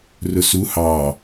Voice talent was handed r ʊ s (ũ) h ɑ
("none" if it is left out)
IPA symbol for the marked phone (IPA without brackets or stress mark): u